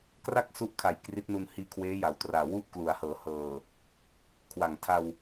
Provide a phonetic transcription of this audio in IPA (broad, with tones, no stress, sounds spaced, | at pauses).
k r a˥˩ k̚ s u˦˥ ʔ kʰ a˨˩ j k r i˦˥ t̚ n u˧ n h iː˧ kʰ w eː˦˥ j a˩˦ w t r aː˨˩ w u˥˩ ʔ k l u˩˦ a̯ h ɤː˩˦ h ɤː˨˩ | kʰ w a˨˩ ŋ tʰ a˧ w